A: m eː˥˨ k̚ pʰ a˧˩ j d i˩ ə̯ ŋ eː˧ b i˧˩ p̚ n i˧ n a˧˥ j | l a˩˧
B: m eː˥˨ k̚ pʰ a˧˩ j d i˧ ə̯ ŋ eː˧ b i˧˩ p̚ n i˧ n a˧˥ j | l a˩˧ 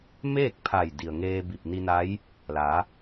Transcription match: A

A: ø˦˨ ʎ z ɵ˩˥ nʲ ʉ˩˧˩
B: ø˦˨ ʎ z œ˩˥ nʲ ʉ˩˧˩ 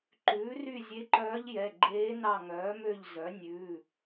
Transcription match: B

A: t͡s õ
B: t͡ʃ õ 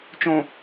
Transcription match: B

